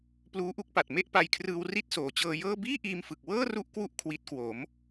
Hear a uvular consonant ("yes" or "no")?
no